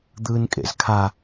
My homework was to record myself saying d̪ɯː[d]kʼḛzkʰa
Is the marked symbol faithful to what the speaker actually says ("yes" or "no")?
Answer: no